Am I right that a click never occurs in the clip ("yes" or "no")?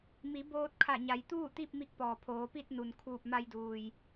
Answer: yes